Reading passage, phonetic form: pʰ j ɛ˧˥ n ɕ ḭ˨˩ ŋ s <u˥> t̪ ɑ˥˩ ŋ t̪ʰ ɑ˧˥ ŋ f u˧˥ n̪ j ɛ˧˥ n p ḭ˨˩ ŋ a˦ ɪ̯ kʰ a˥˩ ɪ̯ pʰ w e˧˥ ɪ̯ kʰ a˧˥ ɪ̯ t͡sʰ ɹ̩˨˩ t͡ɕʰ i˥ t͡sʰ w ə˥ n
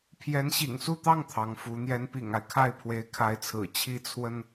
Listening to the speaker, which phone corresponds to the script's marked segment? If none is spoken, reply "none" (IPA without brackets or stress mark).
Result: u˥˧